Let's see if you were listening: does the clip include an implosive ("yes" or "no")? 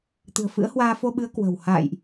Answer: yes